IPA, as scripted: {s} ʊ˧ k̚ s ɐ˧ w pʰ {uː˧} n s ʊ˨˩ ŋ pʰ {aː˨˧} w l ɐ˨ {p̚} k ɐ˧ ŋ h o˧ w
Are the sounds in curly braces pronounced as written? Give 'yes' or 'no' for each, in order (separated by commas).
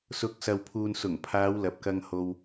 yes, yes, yes, yes